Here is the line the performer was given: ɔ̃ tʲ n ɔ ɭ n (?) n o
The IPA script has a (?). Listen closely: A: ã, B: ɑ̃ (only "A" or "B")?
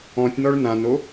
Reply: A